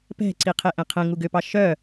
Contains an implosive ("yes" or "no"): no